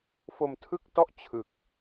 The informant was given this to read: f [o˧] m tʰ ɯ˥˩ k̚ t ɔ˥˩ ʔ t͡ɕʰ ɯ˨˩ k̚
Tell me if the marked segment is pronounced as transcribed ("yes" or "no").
yes